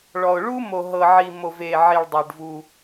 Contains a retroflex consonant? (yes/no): yes